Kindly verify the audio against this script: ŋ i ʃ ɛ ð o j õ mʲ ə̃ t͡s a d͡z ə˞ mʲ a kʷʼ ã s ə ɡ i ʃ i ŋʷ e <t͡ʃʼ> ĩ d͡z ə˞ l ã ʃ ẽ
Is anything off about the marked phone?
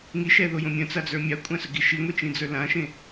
yes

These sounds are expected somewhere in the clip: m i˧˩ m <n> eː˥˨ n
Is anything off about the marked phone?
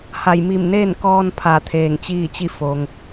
no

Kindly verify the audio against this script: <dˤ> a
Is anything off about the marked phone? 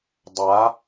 no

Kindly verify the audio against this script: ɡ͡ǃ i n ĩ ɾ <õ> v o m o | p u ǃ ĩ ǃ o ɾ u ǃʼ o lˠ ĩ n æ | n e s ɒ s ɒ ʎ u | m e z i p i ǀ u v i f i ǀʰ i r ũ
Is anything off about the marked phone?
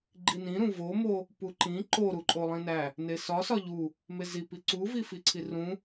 yes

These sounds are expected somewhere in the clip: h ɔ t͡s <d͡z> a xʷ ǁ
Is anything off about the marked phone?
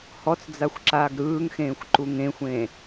no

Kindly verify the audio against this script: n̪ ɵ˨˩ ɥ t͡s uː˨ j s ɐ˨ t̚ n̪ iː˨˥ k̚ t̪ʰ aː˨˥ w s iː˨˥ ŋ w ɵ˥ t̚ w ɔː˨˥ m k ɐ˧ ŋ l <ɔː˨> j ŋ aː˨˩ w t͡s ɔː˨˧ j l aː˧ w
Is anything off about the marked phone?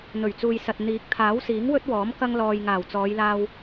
no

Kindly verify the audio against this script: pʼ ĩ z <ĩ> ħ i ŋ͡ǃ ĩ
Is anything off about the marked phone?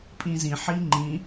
no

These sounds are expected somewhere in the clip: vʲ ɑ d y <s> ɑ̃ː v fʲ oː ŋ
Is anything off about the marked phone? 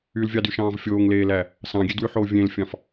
yes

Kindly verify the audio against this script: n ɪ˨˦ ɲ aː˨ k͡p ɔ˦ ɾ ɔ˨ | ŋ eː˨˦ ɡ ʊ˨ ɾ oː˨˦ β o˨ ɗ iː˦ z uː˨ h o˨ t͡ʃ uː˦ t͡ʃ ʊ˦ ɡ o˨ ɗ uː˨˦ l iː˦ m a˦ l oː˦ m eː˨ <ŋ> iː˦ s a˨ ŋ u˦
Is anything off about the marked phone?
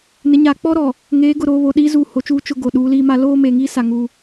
no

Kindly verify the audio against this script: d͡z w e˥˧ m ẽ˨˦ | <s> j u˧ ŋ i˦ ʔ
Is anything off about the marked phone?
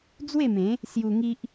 no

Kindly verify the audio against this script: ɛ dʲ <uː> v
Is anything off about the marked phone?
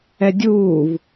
no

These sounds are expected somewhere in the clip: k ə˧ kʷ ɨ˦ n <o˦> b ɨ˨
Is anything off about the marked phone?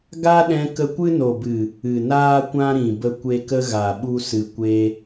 yes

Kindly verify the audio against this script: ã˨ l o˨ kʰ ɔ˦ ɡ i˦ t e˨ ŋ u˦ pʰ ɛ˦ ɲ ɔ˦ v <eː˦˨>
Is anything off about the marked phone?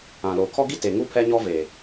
yes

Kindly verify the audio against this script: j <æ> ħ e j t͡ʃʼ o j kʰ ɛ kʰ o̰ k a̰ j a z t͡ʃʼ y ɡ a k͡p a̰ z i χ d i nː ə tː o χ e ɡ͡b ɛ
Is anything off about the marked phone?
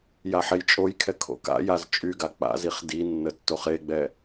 yes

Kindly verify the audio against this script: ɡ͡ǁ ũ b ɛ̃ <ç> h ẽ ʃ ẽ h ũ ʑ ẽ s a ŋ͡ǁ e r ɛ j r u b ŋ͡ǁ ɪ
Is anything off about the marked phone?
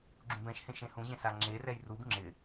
yes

